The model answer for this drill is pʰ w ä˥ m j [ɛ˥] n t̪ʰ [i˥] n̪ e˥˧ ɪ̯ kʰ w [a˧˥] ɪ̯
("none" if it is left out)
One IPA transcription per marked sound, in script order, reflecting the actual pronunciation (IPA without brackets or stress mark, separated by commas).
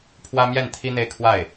ɛ˥˩, i˥, a˥˩